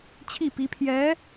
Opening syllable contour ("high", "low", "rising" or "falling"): falling